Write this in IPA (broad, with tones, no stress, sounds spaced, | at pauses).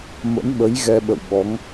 m ə̰˧˥ n ɓ ə˨˦ j ɣ ɛ˧ ɓ ə̰˧˨ w ɓ ɔ˨˦ ŋ